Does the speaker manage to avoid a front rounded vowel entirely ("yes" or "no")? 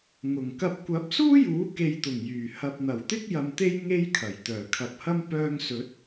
no